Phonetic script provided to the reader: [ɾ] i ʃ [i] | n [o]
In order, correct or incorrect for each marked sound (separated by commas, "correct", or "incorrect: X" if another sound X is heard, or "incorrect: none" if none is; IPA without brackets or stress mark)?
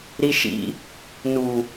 correct, incorrect: ḭ, incorrect: u